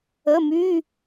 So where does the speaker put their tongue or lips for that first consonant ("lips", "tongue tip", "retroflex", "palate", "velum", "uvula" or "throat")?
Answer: lips